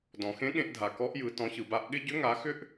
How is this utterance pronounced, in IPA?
d ɔ̃˩ x ẽ˧˥ ɠ ẽ˧ ʔ dʱ a˩ k ɔ˧˥ ʔ j ɯ˩˧ t ɔ̃˩˧ ç ɯ˩ b a˧ ʔ ɠ ɪ˥ ɟ ʏ˧˥ ŋ a˩˧ x ʏ˥ ʔ

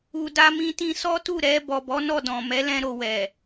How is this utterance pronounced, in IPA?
u˨ d a˧ m ĩ˧ t ĩ˧ s ɔ˦ t u˦˨ ɾ ɛ˧ b ɔ˨ b ɔ˨˦ n ɔ˦˨ d ɔ̃˨ m ɛ˨˦ l ɛ̃˧ ɾ o˨ w ɛ˨

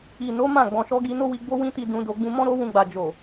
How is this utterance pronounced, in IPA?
i˨ n o˨˦ m ã˦˨ ɡ͡b ɔ̃˨ ʃ ɔ˧ ɡ i˧ n o˦ w i˧ ɡ͡b o˦ w ĩ˦ t i˧ d ũ˧ d o˧ ɡ͡b ũ˧ m ɔ̃˦ ɾ o˦ w ũ˧ ɡ͡b a˨ d͡ʒ o˨

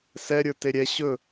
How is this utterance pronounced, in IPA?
s ɛ ɾʲ ə˞ t e ɾʲ ɛ ɕ ɵ

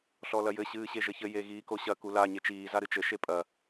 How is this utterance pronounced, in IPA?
ɬ ɔ l ɐ j ɘ ɕ ɨː ɕ e ʒ ɘ ç ɘ j e ɣ iː k o ɕ ɐ k u l a ɲ e t͡ʃ iː z a ɾ ɨ t͡ʃ ɘ ʃ e pʼ ɐ

